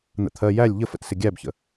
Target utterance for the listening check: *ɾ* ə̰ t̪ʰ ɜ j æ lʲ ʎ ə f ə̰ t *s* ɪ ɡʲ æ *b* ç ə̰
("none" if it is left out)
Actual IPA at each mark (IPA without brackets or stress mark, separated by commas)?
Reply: n̪, s, b